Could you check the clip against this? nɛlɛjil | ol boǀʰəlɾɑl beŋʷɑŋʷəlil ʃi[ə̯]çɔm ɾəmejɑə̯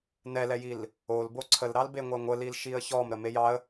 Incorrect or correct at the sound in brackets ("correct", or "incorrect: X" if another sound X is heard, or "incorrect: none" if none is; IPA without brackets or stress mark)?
correct